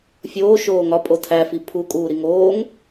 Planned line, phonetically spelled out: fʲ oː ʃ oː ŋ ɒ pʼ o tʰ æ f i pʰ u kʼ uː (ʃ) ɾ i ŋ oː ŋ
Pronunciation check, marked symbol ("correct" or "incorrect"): incorrect